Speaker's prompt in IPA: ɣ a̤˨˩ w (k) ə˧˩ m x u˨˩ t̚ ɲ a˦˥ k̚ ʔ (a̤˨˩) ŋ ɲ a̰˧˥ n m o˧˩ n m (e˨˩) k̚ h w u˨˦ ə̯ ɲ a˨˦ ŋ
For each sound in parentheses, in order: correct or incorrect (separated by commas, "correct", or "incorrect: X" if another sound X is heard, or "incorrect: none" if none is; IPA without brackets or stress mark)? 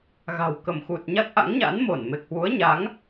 correct, incorrect: a̰˧˥, correct